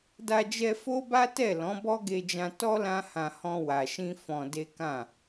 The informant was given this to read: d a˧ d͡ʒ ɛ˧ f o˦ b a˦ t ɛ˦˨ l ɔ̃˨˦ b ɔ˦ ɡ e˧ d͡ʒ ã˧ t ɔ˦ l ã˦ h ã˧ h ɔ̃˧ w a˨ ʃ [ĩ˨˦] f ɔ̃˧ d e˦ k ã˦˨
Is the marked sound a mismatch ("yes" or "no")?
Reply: yes